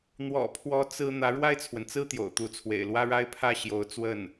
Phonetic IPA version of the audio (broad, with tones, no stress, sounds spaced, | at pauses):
n̪ w ɔ̰˨˩ pʰ w ɔ˧˥ t͡s ɹ̩˥ n̪ ä˧˥ ɻ w a˥˩ ɪ̯ t͡sʰ w ə˩ n t͡s ɹ̩˥ t̪ j o̰˨˩ ʊ̯ t̪ u˧˥ t͡sʰ w ḛ˨˩ ɪ̯ l w ä˥ ɻ a˥ ɪ̯ pʰ ä˥˩ ɕ j o˧˥ ʊ̯ t͡s w ə˥˩ n